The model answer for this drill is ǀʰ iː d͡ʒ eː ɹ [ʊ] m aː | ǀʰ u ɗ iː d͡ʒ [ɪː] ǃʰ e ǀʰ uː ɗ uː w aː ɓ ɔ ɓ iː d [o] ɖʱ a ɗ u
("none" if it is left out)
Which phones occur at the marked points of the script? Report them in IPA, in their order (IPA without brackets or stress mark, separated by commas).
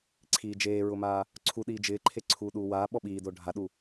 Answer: ʊ, ɪː, o